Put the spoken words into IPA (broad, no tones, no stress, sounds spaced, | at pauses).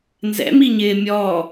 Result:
n z ɛ̰ m i ɲ ɪː mʲ ɔː